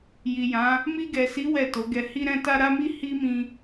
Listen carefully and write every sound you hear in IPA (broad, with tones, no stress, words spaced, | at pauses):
ji˨jã˨˦ | mi˧ɡɛ˨si˨˦ wɛ˦˨to˨˦ɡɛ˧ hi˧ɾɛ̃˧ta˧ ɾa˦mi˦ hi˦mĩ˧